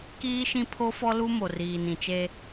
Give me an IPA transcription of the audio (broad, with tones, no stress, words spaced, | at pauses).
kiː˦ʃĩ˦ pʰo˦fɔ˦lu˦ mo˨riː˨nĩ˨t͡ʃe˦